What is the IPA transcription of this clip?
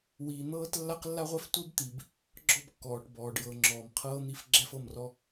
wiː˨n̪ɤː˦t lːa˦q lːa˦ʁʷɛ˦f tʷi˦bt̪i˨b | ɡ͡ǁɔ˦˨bkːɔː˨ʈbɔː˨ɖ jɤ˨ŋ͡ǁɔː˨mqʰɤː˦n̪i˦f ɡ͡ǁɛ˦fɤ˦˨mrɔ˦

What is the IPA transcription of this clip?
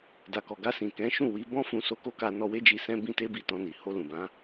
da˨kɔ˨ɡa˧sĩ˨ kɛ̃˨˦ʃũ˦˨wi˨˦ bɔ̃˦fũ˧ so˧ko˦ka˧ nɔ˧we˦d͡ʒi˧ sɛ̃˦bĩ˦te˦bi˦˨ tɔ̃˧ni˨ ho˧lũ˨bã˨˦

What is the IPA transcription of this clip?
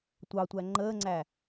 tʷɑtʷæ ŋ͡ǃəːŋ͡ǀæ

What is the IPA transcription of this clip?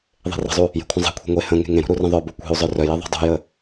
ðˤe̤rə̤zˤu | je̤kʷʰə̃zˤe̤kʷʰe̤ ŋʷe hə̃ ŋe̤ŋẽɾṳ ɾurə̃ðˤœbu kʷe̤u̯zˤœ rœje ðˤo̤dˤṳjə

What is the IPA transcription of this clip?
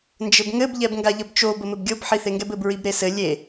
nd͡ʒɘbŋɘb ʎɛbŋɡaʎəbt͡ʃo bəmɘbɡʲob ħiθeŋɡɛbɘb ɹibɾesɘ lʲe

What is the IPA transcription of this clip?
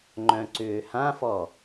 ŋ͡ǃœ̃ǀʏːhãfɔ

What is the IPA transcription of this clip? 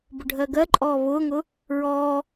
bʊɖʱɜɡɜǃʼɔː βʊːŋʊ | ɹɔː

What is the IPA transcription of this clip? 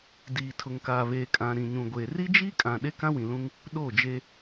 diː˨tʰʊ˨ŋkaː˨ βeː˨kʼã˨ ɾĩ˨ɲũ˨ɡʷeː˨ ri˦d͡ʒiː˦kʼã˨ ɗe˦kã˦wĩ˨lũ˦ŋ | ɗoː˦˨d͡ʒe˦

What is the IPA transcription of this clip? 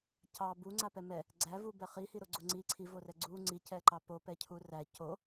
cɑ buŋ͡ǀapɛ mɛ | ɡ͡ǀævubɛ χihiɾoɡ͡ǀo ŋ͡ǀi ǀʰivorɛ ɡ͡ǀu ŋ͡ǀicɛǃɑ popɛcʰu ræ co

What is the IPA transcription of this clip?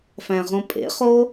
fæ̃ʁõpʼḛχo

